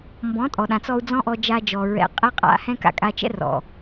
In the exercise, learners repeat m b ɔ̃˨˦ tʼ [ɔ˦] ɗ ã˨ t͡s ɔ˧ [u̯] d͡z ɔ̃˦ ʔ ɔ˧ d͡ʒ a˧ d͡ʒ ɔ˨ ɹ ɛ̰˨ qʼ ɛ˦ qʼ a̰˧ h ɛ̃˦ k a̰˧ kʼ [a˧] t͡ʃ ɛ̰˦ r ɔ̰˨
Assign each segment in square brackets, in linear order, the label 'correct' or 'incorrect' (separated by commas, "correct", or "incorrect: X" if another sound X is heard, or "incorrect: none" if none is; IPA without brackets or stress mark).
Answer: incorrect: ɔ˨, correct, correct